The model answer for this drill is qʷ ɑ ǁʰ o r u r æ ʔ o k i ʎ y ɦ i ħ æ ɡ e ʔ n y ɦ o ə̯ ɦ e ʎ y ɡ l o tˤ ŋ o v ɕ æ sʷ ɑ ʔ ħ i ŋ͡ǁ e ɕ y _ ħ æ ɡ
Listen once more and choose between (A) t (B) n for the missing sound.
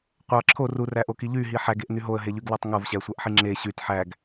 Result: A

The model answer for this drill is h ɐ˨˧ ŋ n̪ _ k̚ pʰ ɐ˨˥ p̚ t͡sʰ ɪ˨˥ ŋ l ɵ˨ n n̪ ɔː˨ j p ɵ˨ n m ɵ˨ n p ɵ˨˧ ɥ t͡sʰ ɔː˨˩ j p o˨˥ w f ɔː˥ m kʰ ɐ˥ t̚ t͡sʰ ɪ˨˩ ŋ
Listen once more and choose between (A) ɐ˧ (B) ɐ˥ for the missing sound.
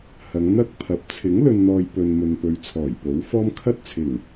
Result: B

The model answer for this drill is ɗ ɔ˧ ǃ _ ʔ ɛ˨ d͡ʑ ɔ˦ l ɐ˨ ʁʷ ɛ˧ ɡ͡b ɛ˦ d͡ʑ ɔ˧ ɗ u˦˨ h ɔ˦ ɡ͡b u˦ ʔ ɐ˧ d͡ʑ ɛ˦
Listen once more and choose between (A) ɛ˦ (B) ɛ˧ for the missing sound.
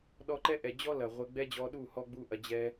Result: A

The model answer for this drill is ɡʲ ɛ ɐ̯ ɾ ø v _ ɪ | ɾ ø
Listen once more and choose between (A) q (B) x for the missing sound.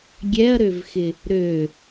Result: B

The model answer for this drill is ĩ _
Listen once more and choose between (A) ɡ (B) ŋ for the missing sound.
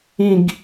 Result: A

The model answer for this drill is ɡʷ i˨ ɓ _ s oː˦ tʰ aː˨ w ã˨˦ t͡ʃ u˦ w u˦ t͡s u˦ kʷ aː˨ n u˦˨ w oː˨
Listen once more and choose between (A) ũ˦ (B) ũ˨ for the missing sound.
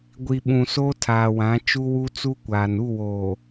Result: B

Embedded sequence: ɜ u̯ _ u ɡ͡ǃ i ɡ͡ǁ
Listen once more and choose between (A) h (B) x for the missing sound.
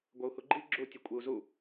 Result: A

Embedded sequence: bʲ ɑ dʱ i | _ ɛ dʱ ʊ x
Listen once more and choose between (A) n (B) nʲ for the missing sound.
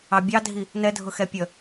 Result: A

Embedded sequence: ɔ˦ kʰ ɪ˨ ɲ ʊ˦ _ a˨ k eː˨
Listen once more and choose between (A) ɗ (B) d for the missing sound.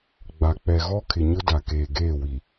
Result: B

